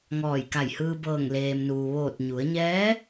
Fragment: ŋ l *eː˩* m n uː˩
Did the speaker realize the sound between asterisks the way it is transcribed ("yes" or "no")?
yes